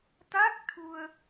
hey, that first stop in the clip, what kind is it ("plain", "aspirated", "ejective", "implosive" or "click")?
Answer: plain